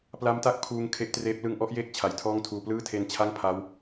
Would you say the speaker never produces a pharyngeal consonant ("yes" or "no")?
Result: yes